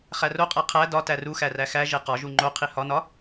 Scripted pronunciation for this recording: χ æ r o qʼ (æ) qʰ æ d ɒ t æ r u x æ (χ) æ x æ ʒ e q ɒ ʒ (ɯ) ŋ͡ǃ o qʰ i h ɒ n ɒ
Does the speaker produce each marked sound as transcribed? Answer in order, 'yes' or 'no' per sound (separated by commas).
yes, no, no